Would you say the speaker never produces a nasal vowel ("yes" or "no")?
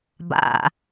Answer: yes